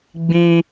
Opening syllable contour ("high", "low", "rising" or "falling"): high